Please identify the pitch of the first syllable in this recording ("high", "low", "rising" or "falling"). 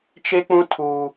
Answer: high